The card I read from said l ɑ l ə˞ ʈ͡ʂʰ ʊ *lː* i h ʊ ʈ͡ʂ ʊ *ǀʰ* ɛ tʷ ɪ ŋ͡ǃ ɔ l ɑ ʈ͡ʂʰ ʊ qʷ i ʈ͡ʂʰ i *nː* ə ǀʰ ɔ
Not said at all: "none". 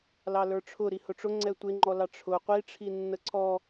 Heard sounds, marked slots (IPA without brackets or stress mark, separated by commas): ɾ, ŋ͡ǀ, nː